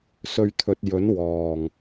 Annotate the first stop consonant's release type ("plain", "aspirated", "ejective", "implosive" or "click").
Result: aspirated